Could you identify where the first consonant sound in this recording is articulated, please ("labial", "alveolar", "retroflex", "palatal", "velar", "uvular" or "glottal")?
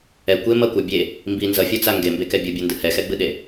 velar